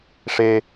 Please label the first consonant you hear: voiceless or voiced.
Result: voiceless